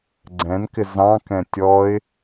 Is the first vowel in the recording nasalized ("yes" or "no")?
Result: yes